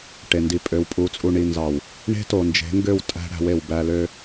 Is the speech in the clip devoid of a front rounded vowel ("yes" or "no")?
no